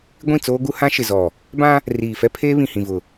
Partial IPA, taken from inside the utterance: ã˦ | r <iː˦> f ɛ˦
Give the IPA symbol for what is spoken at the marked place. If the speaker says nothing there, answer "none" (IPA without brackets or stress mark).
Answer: iː˨